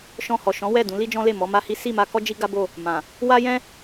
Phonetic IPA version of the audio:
ʃɔ̃˧hɔ˨ ʃɔ̃˨˦wɛ˦˨ dũ˨˦li˦d͡ʒɔ̃˦le˦˨ mɔ˨˦ma˦hi˦ si˦˨ma˧kɔ˦ d͡ʒi˦ɡa˦bo˦˨ | mã˨ | wa˦jɛ̃˦

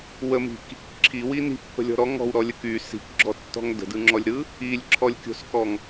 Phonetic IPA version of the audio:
wəmi̤k | ǁʰiwi ni̤pːə̤lʲɔ̤ ɾɔ ŋɔ̤wɾɔlʲə ky si̤kɡ͡ǁɔtːɔ̤ŋ də̤dɯŋ͡ǁɔlʲɾɯ | ilʲǁʰɔlʲkʲo̤skɔŋ

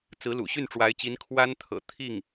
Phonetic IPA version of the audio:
t͡sɹ̩˧˥lṵ˨˩ ɕy˥˩nʈ͡ʂwa˧˥ɪ̯t͡ɕi˧˥n kʰwa˥nt̪ʰɤ̰˨˩ t̪ʰi˥˩ŋ

